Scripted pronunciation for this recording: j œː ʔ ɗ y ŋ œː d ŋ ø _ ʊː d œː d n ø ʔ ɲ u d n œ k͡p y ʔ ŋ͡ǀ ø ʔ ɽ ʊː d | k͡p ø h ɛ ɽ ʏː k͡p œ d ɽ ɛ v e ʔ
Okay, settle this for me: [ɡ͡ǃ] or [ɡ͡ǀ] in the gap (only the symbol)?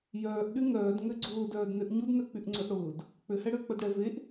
ɡ͡ǀ